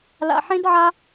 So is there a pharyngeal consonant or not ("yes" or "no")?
yes